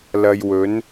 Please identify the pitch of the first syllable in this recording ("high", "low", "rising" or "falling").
low